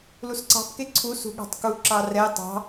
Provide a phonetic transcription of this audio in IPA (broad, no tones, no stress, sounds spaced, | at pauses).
l u s ǀ ɑ̤ p k e ǀʰ u s ṳ ɠ ɑ̤ tˤ k u ǁ ɑ r ɛ tˤ ɑ̤